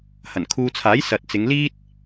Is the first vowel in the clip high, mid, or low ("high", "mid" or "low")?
low